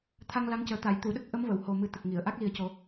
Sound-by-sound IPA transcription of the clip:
t̪ʰ a˧ ŋ l a˧˥ ŋ c əː˨˩ t̪ a˨˩˨ j t̪ u˨˩˨ ɗ ə˦˥ k̚ ʔ ə˧˥ m v ə˨˩˨ w h o˨˩ m ɨ˨˩ t̪ ə˨˩ k̚ ŋ i˨˩˨ ə̯ ʔ a˦˥ k̚ l i˨˩ ə̯ c o˨˩˦

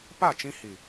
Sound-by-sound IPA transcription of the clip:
p a˦˨ t͡ʃ ĩ˧ h i˨

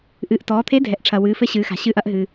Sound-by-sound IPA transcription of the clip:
ʔ ɨː˩˧ ʔ t ɔː˩˧ t̪ʰ e˧˥ dʱ ɛ˩˧ ʔ ʈ͡ʂʰ ɐ˩ w ɨː˩˧ f ɘ˧˥ ɕ ɨː˩˧ x a̤˩ ɕ ɨː˧ ʔ ɐ˧ ʔ ɦ ɨ˩

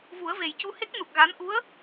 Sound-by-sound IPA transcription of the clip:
v u˨˩˦ ə̯ v e˨˩ j c u˧ h e˦˥ k̚ n u˨˩ k̚ ɣ a˧˥ n ʔ u˧˥ ə̯

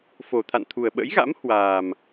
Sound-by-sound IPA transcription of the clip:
f o˨˩ t̪ʰ a̰˧˨ n t̪ʰ u˨˩ ə̯ ɓ ə̰˧˥ j ɣ a̰˧˥ m h w aː˨˩ m

